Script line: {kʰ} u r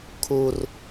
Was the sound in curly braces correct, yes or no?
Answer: yes